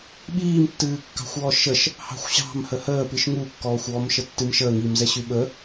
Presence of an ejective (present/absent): absent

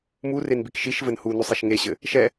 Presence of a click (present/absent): absent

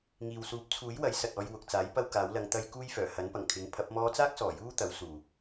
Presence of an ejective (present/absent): absent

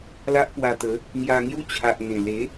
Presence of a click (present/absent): absent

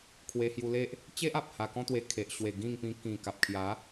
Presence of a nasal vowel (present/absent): present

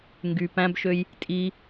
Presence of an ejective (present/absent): present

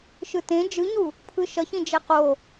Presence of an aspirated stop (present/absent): present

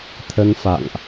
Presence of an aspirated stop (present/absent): present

